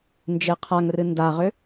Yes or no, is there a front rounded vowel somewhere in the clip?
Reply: yes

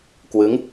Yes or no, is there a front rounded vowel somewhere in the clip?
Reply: no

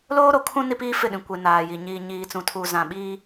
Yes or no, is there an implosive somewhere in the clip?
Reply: yes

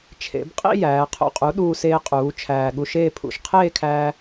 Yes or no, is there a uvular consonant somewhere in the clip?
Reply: yes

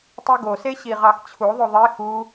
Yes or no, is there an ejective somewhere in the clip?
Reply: no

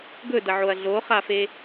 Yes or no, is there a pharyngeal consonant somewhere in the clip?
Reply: yes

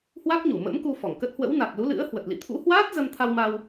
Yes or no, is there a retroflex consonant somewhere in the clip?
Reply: no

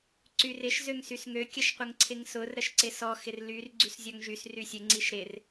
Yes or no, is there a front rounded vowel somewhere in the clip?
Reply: yes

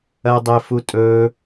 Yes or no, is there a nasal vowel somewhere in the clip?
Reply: no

